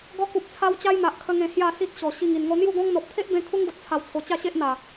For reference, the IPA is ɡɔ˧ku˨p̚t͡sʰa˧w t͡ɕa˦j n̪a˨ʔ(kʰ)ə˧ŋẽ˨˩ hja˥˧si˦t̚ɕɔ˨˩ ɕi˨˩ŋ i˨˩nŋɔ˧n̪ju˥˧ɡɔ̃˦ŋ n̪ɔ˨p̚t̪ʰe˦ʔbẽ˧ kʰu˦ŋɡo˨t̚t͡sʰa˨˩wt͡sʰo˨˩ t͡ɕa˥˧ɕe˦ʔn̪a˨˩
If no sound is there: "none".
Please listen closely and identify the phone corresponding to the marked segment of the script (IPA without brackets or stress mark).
kʰ